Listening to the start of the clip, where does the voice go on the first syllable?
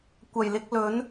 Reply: low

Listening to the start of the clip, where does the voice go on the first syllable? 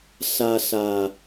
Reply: low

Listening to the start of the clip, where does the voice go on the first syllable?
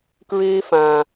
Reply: high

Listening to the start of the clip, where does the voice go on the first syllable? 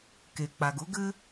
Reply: low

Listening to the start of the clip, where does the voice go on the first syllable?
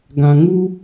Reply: low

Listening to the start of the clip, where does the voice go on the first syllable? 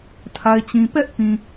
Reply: low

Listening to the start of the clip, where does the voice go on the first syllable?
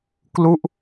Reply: falling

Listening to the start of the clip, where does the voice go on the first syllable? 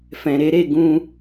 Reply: low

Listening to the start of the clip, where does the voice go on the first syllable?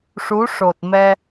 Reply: rising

